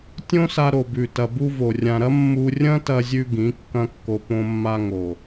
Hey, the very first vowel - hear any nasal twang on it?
yes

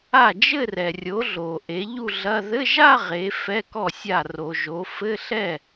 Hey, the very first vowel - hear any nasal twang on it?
no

